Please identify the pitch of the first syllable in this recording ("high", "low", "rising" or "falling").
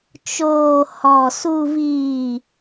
low